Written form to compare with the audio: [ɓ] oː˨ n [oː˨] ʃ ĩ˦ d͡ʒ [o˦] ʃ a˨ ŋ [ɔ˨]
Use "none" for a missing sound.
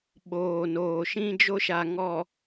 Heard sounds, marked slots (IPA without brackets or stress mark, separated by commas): ɓ, oː˨, o˦, ɔ˨